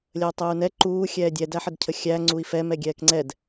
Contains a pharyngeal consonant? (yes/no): yes